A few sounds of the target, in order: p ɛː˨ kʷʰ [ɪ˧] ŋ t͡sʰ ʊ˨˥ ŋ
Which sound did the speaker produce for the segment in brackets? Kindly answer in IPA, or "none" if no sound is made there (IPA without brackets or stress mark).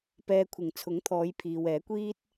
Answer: ɪ˨˩